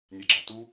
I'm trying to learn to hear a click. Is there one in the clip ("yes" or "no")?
yes